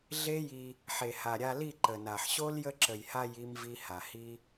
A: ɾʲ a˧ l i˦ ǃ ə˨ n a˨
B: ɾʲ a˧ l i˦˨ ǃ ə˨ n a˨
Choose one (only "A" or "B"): B